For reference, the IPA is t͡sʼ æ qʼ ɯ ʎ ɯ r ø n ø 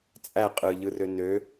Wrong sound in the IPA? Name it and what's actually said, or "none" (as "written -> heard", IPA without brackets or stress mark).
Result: none